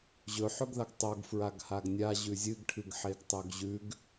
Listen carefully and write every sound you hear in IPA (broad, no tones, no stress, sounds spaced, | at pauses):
ʑ ɵ ħ ɵ ɡ ð a ɡ tˤ o ɡ f ɹ a ɡ h a ɡ nʲ a ʑ ʉ zʲ ɨ ɡ ʈʰ ɨ ɡ ħ e ɡ tˤ o ɡ ʑ ʉ ɡ